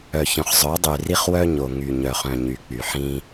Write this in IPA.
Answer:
œ˨ ç œ̃˨ χ zˤ œ˨˦ dˤ y˨ r i˦ χ w œ˦ ɲ o˨ ŋ y˨ ɲ œ˨ χ œ̃˨ ɲ y˨ k͡p y˨ ħ ĩ˦

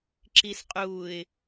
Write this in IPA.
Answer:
ǁ i s qʼ uː ɪ̯

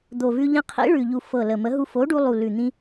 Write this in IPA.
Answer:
d̪ o˨˩ v ʉ˧ ʎ ĩ˧ qʰ ḭ˨˥ ɭ ʉ˨˩ ʎ u˨˩ f ɤ˨˩ l ə˨˩ m ə˨˥ ɦ u˧ f o˨˥ ɖ u˧ lˠ u˨˩ l ʉ˨˩ n̪ ĩ˧

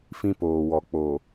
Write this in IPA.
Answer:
f ĩ˦ p oː˨ w ɔ˨ k͡p o˨

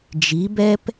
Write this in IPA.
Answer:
d͡ʒ i˨˦ b ɛ˦ p

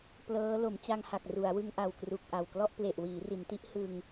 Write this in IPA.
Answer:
p l ɤː˦˥ l o˩˦ m t͡ɕ a˧ ŋ h a˨˩ k̚ r u˩˦ a̯ w ɯ˧ ŋ ʔ a˨˩ w k r u˨˩ k̚ ʔ a˨˩ w k l ɔ˥˩ ʔ p l e˨˩ ʔ w iː˩˦ r i˩˦ n t i˦˥ ʔ h ɯ˧ ŋ

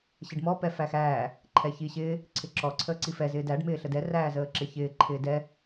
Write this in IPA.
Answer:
ɕ ɪ ɖ m ɔ p ɛ f æ x æː | ǃʰ ɛ ç i ɕ ɪː | ǀʰ ɪ ǁ ɔ ǀʰ əː ǀ i f ɛ z ɪː d æ ɖ m ɪː ɬ ə d ɛ r æː z əː ǁ ɪ ç ɪː ǃʰ ɪː d ɛ

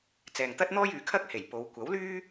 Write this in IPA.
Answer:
t͡s ɛː˨ ŋ t̪ ɐ˥ t̚ n̪ ɔː˥ j yː˨˥ kʰ ɐ˥ k̚ h e˨˩ j p o˨˧ w kʷ ɐ˨˥ w l yː˥

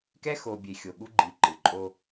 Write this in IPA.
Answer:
k ɛ˦ x o˨ bʲ e˨ xʲ o˨ ɠ u˦ ɡ͡ǃ i˨ ǃ ɯ˨ ǃʼ o˦

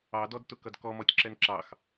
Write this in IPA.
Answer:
ɑ d ɔ d t ʊ k ʌ d k ɔ m ɔ tʲ ǁ ɛ n ǁ ɑ x

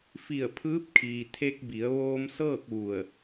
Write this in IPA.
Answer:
f i˧˩ ə̯ pʰ ɯː˧˥ p̚ kʰ iː˩ t̪ʰ e˧ k̚ b i˩˧ ə̯ ʋ oː˧ m s ɤː˥˨ k̚ ʋ u˧˩ ə̯

